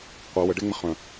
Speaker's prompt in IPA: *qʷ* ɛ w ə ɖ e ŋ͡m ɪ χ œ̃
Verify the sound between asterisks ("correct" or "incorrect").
correct